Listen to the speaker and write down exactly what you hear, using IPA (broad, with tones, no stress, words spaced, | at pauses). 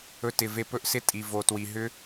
ɵ˧tɪ˨ve˧ pɵ˦ʔsɪ˦tʼi˨ vo˨twi˨ ɦʏ˦